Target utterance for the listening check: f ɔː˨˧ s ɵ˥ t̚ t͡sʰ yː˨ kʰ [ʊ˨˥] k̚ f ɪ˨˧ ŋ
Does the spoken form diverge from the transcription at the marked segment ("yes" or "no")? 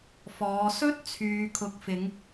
no